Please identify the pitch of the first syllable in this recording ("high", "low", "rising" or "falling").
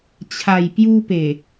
low